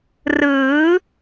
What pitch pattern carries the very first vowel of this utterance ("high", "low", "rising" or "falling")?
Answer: rising